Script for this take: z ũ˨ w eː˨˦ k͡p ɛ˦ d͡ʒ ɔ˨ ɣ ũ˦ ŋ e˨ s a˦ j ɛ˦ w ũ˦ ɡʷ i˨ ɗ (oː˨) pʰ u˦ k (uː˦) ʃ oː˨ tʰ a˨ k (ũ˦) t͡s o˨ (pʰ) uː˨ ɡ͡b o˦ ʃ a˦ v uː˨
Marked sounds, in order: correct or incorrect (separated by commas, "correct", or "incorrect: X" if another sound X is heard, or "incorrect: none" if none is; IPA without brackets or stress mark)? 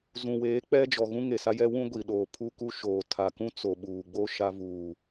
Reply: correct, incorrect: u˦, correct, incorrect: ɓ